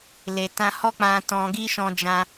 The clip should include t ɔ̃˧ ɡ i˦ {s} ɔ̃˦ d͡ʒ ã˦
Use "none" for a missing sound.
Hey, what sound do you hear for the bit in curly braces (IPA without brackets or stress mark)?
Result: ʃ